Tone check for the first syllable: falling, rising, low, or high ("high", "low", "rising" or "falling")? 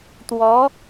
rising